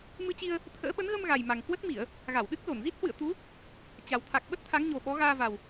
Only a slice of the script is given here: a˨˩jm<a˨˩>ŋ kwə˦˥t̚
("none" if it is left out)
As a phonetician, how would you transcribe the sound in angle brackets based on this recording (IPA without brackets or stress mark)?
a˨˩